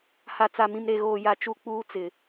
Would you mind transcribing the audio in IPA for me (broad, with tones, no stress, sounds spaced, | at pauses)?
h a˨ t͡s a˨ m ĩ˨ m ɾ e˨ ɣ oː˨ j a˨ t͡ʃ u˦˨ k͡p uː˦ t͡s ɪ˨